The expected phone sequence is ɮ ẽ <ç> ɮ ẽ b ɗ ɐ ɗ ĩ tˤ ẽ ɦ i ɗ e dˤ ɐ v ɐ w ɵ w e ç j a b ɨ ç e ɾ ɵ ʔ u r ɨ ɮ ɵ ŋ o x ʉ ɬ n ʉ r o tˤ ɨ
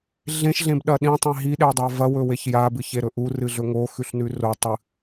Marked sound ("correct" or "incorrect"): incorrect